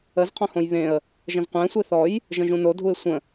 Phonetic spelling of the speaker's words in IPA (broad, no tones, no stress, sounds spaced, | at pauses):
ə z qʰ ɔ̃ h õ j β ẽ ə̯ | ʒ ə̃ z qʷ æ̃ sʷ e θ ɔ j | ʒ ə̃ ʒ ũ n o dʱ u ɪ̯ sʷ ə̃